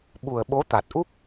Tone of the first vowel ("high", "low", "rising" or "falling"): low